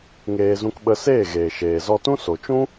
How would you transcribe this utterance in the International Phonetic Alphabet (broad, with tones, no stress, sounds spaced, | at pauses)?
ŋ eː˧ z ũ˧ k ɓ ə˧ s eː˦˨ ɣ eː˨ ʃ eː˨ z ɔ˧ t ũ˦ s o˨ t͡ʃ ũ˦